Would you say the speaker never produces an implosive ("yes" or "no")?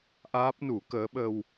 no